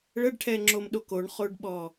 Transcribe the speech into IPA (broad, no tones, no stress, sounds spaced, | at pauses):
ɭ ə ɖ ʈʰ ɛ ŋ͡ǁ o m ɗ o k o ɳ χ o ɖ ɓ ɔ